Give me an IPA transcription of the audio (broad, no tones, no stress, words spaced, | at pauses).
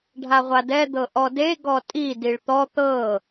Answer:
ɖʱaʁʷadɛ d̪ɤʔɔde ɡɔtʼi diɭt̪ɔ t̪ɤ